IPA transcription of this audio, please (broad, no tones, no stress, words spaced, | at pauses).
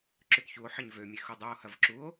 ǁʏtçuo̯ħɐɲ vømʲe xudˤuo̯hɐv ǁuo̯